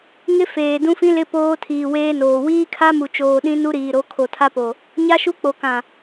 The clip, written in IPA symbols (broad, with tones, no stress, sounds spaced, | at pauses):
ŋ ɪ˦ f eː˨ d ũ˦ f ĩ˦ l ɪ˦ p oː˦ tʰ iː˨ w eː˦ n oː˨ w iː˦ kʰ a˦ m u˨ t͡ʃ oː˨ ɗ ĩ˦ n u˦ ɾ iː˨ ɾ o˨˦ kʰ o˨ tʰ a˦ p o˨ | ɲ a˦ ʃ u˦ k͡p o˨ k ã˨